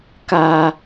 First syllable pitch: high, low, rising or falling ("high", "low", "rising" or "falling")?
low